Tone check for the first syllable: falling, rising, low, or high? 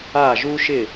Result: falling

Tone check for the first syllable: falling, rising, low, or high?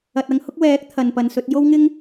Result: low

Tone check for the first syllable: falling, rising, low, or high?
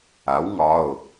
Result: rising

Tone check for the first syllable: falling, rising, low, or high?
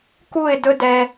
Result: falling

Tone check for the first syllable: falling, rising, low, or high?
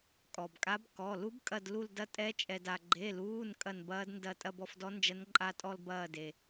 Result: low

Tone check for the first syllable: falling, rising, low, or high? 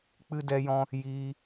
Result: high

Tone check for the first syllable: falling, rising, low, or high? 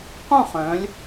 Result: falling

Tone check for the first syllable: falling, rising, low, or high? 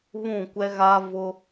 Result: falling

